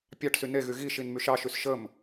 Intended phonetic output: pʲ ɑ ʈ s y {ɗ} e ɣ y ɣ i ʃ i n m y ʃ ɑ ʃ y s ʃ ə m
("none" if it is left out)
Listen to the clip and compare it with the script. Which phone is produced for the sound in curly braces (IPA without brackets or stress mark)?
n